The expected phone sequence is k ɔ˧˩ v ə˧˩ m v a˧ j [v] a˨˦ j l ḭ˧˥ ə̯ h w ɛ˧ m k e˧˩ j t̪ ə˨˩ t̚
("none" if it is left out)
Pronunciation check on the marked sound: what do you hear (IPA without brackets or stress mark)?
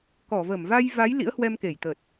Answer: v